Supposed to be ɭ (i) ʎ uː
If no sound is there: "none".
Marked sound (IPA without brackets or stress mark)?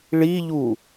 i